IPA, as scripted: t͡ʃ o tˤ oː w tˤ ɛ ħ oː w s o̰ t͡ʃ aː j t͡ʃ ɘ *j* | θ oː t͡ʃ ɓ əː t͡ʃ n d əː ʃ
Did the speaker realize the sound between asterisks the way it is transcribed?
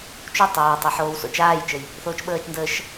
yes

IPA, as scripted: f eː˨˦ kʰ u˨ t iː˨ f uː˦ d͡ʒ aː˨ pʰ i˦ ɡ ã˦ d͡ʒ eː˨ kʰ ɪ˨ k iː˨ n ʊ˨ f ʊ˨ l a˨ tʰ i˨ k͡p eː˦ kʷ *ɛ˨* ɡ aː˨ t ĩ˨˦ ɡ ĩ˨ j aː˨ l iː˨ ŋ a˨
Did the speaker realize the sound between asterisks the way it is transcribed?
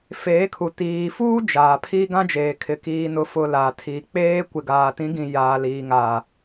no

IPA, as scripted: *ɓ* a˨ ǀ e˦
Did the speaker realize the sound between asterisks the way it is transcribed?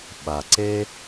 yes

